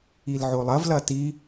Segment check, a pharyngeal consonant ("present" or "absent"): present